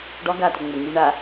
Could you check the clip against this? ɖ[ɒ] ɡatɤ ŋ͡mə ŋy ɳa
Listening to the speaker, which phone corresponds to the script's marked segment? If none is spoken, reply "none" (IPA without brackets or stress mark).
ɒ